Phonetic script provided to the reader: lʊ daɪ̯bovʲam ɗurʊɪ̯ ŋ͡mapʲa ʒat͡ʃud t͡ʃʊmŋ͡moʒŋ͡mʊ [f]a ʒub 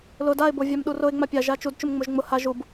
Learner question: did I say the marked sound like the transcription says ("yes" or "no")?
no